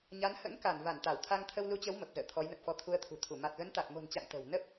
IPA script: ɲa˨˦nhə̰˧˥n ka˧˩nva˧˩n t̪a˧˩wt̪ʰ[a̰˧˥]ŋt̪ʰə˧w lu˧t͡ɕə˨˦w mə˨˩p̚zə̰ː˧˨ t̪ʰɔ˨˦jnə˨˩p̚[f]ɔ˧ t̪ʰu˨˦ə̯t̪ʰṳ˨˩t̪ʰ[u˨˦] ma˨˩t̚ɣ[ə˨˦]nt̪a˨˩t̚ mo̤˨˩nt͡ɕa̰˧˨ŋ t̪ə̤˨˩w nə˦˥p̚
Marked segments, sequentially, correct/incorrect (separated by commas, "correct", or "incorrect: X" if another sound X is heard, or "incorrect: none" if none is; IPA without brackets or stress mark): incorrect: a˧, correct, incorrect: u˧˩, correct